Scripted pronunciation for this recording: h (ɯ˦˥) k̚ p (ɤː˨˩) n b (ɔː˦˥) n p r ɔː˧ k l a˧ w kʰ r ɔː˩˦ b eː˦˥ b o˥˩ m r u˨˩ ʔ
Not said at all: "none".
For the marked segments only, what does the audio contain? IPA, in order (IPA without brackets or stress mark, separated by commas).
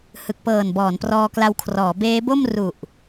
ɯ˨˩, ɤː˨˩, ɔː˩˦